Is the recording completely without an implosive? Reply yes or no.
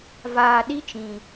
no